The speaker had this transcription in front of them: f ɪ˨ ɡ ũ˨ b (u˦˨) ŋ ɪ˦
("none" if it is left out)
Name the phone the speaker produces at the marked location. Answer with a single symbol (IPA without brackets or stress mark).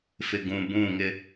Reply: ũ˦˨